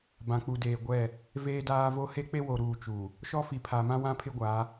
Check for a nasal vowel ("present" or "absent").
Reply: present